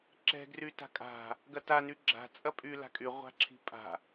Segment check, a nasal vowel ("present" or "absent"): absent